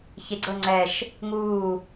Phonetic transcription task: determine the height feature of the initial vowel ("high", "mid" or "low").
mid